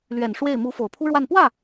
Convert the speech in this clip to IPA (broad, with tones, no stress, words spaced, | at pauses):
lɥɛ˨˩n ʂwe˥˩ɪ̯ mu˧˥ fo˨˩ʊ̯pʰu˥ɻwa˥˧n pwä˥˩